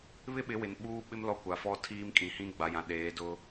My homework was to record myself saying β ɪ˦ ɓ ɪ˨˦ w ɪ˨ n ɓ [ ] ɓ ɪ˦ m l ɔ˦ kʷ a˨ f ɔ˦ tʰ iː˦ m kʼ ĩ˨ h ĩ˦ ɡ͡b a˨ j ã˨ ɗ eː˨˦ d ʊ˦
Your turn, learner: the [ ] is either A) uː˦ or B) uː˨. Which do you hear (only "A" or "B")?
A